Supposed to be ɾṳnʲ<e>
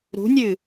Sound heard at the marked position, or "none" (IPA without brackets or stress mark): ɨ